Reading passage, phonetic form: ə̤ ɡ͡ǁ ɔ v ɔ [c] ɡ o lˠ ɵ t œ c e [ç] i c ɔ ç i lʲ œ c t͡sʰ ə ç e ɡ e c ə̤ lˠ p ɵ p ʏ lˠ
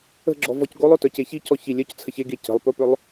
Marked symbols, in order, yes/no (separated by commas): yes, yes